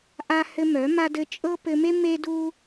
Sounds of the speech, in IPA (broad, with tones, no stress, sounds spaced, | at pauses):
ʔ a˦ h ɘ˦ m œ˨˦ m a˦ d ɘ˦ t͡ʃʼ ɤ˦ p ɘ˧ m e˦ m e˦ d u˦